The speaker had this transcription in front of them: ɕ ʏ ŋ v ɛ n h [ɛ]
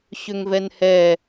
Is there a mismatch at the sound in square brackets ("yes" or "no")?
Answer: no